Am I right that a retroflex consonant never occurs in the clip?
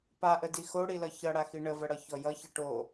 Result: no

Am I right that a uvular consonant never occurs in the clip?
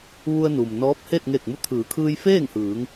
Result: yes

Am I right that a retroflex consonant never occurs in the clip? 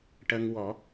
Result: no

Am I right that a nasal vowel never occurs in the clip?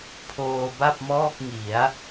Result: yes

